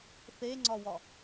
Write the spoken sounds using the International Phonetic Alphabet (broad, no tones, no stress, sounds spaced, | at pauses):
θ e ŋ͡ǀ ɒ w ɒ